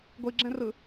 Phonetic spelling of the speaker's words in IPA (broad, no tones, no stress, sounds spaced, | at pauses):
ɡʷ i ɡ͡ǁ ɛ̃ r ɯ